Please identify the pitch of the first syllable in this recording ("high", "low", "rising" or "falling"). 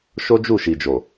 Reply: high